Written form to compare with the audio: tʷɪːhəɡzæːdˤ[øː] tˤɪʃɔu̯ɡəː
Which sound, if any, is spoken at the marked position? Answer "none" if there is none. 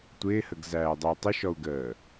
əː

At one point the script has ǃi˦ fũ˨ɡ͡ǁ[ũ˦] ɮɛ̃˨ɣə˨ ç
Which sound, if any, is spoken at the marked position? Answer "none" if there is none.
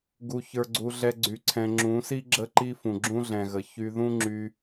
ũ˦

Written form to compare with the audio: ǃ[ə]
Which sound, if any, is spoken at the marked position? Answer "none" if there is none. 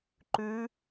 ʉ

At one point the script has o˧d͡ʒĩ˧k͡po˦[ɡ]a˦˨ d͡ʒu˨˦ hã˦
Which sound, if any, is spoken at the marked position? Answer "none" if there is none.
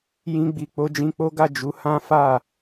ɡ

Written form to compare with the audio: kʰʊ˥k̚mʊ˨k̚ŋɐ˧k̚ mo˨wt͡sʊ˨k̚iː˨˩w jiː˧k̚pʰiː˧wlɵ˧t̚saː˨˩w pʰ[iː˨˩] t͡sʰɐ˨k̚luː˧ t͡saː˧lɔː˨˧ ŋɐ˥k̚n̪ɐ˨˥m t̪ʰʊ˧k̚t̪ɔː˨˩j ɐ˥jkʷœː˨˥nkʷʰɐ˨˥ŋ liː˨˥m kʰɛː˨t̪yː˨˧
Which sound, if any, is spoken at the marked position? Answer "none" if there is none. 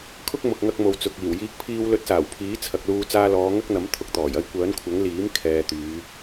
iː˨˥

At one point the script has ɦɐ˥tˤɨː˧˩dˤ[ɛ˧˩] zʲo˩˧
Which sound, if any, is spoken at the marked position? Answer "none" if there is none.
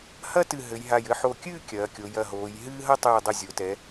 ɨ˧˩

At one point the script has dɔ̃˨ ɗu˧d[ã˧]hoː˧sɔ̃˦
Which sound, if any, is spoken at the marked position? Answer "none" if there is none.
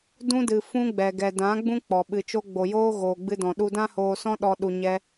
ã˦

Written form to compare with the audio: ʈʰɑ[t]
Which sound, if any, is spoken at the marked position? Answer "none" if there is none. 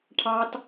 t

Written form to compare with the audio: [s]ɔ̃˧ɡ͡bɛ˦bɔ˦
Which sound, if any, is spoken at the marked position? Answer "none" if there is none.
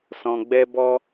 s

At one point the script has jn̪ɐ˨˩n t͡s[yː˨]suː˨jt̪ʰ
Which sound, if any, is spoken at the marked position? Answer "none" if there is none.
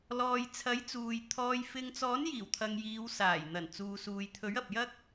uː˨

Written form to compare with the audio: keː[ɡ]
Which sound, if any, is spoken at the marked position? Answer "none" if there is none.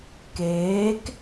k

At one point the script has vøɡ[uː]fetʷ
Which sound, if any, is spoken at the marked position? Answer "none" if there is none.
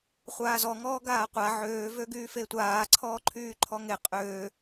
yː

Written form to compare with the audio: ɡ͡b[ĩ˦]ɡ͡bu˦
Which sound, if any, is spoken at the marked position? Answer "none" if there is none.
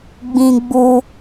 ĩ˦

